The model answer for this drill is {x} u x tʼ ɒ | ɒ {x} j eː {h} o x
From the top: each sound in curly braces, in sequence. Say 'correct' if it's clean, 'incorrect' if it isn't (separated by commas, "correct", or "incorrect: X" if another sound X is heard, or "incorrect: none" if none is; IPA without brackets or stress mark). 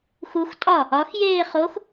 correct, correct, incorrect: χ